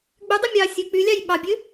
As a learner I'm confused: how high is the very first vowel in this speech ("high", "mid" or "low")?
high